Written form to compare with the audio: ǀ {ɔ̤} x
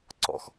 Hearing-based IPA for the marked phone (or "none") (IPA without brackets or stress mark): ɔ̰